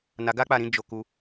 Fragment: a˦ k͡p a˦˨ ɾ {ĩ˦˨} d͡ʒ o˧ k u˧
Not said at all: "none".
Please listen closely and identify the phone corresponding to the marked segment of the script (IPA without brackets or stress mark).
ĩ˨˦